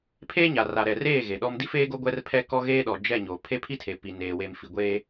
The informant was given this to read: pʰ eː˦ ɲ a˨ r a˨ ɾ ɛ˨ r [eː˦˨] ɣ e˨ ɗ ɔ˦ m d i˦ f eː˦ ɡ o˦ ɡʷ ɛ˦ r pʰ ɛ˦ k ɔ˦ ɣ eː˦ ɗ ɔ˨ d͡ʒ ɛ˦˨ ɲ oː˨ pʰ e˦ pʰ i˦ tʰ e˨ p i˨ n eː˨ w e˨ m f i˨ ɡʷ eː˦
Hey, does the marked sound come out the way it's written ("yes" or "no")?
yes